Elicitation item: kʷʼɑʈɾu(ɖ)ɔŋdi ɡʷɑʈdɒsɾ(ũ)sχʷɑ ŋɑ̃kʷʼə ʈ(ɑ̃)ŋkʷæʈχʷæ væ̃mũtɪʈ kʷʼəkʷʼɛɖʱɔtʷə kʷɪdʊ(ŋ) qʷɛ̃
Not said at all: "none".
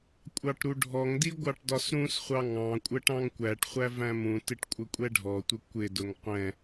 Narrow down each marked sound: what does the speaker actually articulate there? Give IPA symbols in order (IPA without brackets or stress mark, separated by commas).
ɖʱ, ũ, ɑ̃, ŋ